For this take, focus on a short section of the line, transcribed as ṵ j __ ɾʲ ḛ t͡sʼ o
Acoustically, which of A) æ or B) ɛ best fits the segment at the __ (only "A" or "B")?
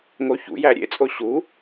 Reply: A